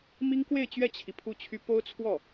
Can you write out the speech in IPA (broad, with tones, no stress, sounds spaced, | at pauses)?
m i˥ ŋ k w e˥˧ ɪ̯ t͡ɕ ɥ ɛ˥˩ t͡ɕʰ i˩ pʰ u˥˩ t͡ɕʰ y˥ p o˥ ʊ̯ t͡sʰ w ɔ˥˩